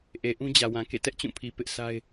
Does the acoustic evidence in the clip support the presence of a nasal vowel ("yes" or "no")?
yes